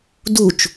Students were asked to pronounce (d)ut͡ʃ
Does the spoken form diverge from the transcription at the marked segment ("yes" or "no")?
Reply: no